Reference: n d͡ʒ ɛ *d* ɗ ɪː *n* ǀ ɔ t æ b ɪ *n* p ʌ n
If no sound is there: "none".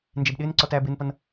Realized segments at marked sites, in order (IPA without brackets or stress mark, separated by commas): b, n, n